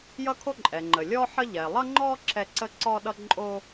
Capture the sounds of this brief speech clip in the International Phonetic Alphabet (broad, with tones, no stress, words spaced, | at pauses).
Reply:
jʌ˥kʰo˥ ǃʼɛ˩ ŋ͡ǃə˩lʲɔ˥ ħə˥ ʎɛ˩lˠʌ˥ŋ͡ǃɔ˥ ǁɛ˥ ǀə˥ǀɔ˥ɗʌ˥ǃʼo˥